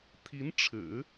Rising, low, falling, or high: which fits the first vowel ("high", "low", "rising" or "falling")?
rising